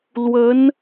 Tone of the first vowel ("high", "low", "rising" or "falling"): rising